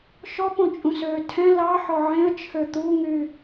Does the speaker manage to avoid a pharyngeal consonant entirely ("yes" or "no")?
no